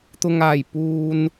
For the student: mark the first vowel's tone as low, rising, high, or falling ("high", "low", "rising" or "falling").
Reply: low